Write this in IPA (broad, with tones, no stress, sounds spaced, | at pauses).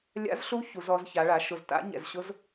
lʲ a̰˧˥ z ɬ u˧˥ ç u˩˧ z ɔ˩˧ z ç a˩˧ ɭ a˩˧ ʃ ʊ˨˩ z t a̰˧˥ ɲ ɛ̰˨˩ z ɕ ʊ˧˥ z